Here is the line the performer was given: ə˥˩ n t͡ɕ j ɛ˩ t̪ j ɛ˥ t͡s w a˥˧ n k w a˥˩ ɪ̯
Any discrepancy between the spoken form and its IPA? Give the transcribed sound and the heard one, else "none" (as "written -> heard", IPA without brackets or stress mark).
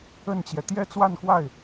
none